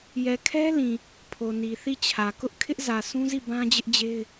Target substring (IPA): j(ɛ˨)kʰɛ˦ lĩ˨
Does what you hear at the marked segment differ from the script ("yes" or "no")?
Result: no